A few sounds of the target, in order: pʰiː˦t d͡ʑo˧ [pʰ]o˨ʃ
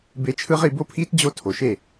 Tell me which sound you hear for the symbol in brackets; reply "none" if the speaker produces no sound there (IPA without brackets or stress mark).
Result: tʰ